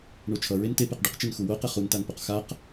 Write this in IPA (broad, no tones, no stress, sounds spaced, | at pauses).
ɳ o t͡ʃʰ ʌ ɹ e n t e p e q ɖ ɯ q t͡ʃ e n x u w o q ɛ χ u n t a n p o q x a q